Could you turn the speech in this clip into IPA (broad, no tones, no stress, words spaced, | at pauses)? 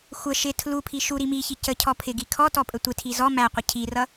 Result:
xʷə ʃɪ tʰlupʰi ʃu ɾimiçi cə cʰɔpʰɪɡi kʰɔ tɔpʼətʷɪtʰi zɔ mæqʷə cʰirʌ